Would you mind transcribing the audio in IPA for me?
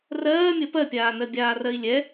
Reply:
r ɜː mʲ ɜ p ɜ pʲ aː n ɜ bʲ aː r ɜ i̯ lʲ ɛ

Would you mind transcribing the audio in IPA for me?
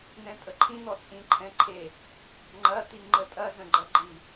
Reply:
n̪ ɛ̃ tʼ ə ǃʰ ĩ n̪ ɔ t͡sʼ ĩ ǃʰ ɛ̃ ǃʰ e | ŋ͡ǃ ɐ t̪ i ŋ͡ǃ ə tʼ ɐ z ə̃ ɡ͡ǃ ɐ ɡ͡ǃ i

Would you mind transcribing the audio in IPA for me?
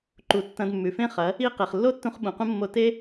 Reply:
ǃ u˨ tː ɐ̃˧ d mː ʉ˨ f ẽ˦ χ ɐ˨˦ | i˦ q e˨ χ lː o˦ tː ũ˧ χ ɓ ũ˨ q ũ˦ mː o˧ t e˦

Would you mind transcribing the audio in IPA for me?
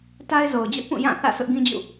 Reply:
t a˦ ɪ̯ z o˨ ʊ̯ d͡ʑ ʊ˦ ʔ p ũ˦˨ j ã˦˨ θ ä̰˦˨ s ʊ˦ ʔ ɡ ĩ˦ d͡ʑ ṵ˦˨

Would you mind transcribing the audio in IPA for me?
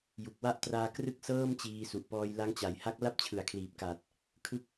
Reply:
j u˨˩ k̚ w a˦˥ ʔ t r aː˧ k r ɯ˦˥ k̚ s ɤː˥˩ m t͡ɕ iː˧ s u˨˩ ʔ p ɔː˧ j l a˦˥ ŋ t͡ɕ a˩˦ j h a˦˥ k̚ l a˥˩ p̚ t͡ɕʰ ɯ˩˦ a̯ kʰ l iː˨˩ p̚ k a˨˩ t̚ | kʰ ɯ˦˥ k̚

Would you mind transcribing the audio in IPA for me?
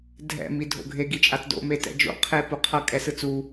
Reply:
dʱ ɛ̰ m i dʱ o̰ ɡʱ e ɡ i t͡ʃʼ a t d o̰ m e t ɛ̰ d͡ʒ o̰ qʰ e p u qʰ ʌ kʼ ɛ s ɯ t͡s u

